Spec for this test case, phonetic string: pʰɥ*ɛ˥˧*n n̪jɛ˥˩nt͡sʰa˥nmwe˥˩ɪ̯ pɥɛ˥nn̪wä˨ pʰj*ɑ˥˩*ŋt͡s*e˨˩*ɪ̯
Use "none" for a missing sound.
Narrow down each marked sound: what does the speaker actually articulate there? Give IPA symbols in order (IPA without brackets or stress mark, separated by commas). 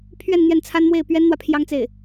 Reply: ɛ˥˧, ɑ˥, e˥˩